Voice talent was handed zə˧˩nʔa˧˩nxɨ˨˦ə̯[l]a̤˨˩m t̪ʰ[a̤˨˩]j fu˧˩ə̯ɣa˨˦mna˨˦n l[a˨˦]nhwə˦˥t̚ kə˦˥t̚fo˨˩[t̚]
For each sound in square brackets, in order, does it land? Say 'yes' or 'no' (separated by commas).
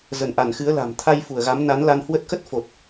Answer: yes, no, no, yes